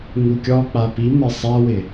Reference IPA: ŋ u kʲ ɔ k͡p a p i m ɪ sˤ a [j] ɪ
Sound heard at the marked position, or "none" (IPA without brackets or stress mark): w